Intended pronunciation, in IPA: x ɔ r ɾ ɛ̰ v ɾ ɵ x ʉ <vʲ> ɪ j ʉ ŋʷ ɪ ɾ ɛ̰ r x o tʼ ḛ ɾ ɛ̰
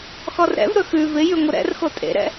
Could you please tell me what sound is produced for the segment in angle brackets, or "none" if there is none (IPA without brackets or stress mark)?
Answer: v